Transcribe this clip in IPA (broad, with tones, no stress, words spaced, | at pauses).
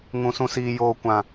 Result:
ŋũ˦sũ˦siː˦ joː˦kʷã˦